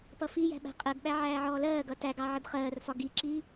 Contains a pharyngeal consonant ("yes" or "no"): yes